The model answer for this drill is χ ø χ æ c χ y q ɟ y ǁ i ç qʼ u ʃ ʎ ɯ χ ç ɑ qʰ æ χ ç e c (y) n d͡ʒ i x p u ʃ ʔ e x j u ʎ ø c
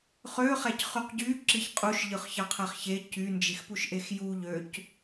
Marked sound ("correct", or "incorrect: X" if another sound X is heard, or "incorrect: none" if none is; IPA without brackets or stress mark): correct